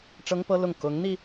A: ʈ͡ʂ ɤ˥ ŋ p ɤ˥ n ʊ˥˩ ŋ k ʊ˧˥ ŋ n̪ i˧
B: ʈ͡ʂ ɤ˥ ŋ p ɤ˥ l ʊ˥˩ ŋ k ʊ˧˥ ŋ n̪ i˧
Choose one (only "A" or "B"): B